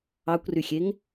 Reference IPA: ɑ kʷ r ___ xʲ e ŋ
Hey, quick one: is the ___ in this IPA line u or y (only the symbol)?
y